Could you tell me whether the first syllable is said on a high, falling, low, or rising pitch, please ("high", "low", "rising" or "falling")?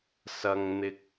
low